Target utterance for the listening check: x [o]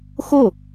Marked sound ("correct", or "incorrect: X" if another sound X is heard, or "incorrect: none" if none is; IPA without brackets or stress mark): correct